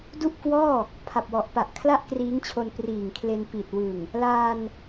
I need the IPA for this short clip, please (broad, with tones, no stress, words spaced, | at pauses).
du˥˩ʔkwɔː˥˩ | pʰa˨˩p̚wɔ˨˩ʔpa˨˩ʔ kʰla˥˩ʔkriː˦˥ŋt͡ɕʰo˧n priː˨˩ŋkʰle˧n pi˨˩t̚wɯ˨˩ŋ | laː˧n